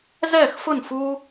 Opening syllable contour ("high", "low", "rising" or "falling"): falling